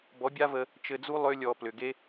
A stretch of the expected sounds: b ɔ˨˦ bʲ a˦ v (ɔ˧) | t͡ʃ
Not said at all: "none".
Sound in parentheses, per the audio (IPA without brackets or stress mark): ə˧